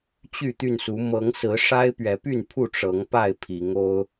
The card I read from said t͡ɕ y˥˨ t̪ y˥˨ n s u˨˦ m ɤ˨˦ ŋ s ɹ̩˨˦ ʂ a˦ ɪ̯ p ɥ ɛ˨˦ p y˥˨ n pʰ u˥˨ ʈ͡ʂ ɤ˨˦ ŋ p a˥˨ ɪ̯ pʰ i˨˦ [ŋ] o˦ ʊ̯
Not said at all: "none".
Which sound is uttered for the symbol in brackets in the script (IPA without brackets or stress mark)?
ŋ